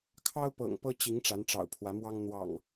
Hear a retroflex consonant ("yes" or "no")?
yes